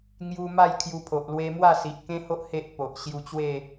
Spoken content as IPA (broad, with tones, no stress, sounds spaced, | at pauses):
ŋ j u˧ m a˥˧ j kʰ j u˧ pʰ o˨ ʔ l w e˦ m w a˥˧ s i˨ ʔ k ẽ˦ h o˦ ʔ h e˦ ʔ p o˨ ʔ ɕ j u˧ t͡ɕ w e˥˧